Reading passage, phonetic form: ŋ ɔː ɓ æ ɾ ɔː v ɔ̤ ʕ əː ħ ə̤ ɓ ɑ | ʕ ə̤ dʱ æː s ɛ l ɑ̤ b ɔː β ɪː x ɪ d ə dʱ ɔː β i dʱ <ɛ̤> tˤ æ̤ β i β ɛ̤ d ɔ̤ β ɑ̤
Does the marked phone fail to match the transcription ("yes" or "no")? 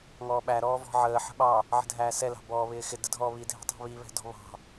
no